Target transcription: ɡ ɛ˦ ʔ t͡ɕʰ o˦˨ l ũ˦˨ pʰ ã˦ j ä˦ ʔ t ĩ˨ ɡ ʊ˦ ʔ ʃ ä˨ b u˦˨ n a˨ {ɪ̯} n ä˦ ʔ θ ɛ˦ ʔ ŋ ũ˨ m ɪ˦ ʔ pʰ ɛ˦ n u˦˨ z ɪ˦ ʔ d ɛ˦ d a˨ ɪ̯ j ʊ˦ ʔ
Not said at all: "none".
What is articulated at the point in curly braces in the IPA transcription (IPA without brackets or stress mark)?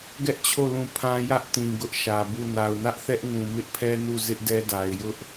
ʊ̯